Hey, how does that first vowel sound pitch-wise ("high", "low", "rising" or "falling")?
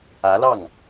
rising